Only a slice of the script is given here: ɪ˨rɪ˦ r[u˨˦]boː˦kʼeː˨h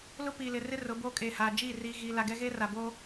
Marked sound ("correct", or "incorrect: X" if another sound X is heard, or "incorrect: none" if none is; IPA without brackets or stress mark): incorrect: ʊ˨˦